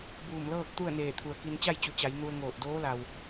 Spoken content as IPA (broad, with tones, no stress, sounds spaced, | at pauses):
b uː˧˩ m l ɤː˥˨ k̚ t̪ u˥˨ ə̯ n eː˧˩ t̪ʰ u˩ ə̯ k i˧ n t͡ɕ a˥˨ j t͡ɕ u˩˧ t͡ɕ a˩˧ j n u˧ ə̯ ŋ oː˧˩ t̚ d oː˧˥ l a˩ w